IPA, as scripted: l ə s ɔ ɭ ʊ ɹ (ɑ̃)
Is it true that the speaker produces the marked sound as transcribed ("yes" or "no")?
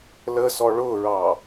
no